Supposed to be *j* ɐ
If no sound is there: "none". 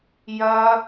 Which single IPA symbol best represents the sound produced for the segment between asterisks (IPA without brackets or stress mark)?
j